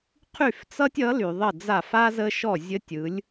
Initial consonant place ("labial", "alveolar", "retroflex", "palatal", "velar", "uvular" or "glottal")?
uvular